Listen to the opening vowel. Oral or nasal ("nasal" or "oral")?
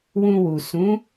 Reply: nasal